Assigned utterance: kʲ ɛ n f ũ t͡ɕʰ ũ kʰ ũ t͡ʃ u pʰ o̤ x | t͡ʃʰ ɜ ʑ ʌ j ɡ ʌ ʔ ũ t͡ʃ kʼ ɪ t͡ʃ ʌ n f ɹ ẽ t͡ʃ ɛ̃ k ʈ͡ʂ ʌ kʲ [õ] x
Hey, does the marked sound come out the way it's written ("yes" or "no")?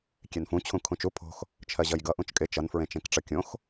yes